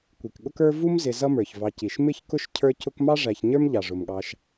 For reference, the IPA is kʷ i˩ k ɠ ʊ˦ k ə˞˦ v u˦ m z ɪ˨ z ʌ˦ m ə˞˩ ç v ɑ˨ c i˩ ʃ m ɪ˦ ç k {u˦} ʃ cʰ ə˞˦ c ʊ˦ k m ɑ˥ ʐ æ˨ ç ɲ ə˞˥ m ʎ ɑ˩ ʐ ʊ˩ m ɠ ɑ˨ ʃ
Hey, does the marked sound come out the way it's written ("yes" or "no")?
no